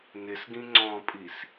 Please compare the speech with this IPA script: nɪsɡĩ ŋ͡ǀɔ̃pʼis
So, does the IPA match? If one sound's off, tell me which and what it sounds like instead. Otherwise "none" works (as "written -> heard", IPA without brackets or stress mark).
none